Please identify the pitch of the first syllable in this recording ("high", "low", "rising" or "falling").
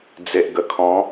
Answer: low